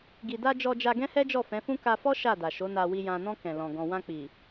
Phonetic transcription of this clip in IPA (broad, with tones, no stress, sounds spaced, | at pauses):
ɡ i˨ d a˧ d͡ʒ ɔ˧ d͡ʒ a˧ ɡ ɛ̃˦ h ɛ˦ d͡ʒ ɔ˦˨ f ɛ̃˨˦ f ũ˦ k a˧ f ɔ˦ ʃ a˦˨ d a˨ ʃ o˨˦ n a˧ w i˨ j ã˨ n ɔ̃˧ k ɛ̃˨ l ɔ̃˨ ɡ ɔ̃˨ w ã˧ k͡p i˨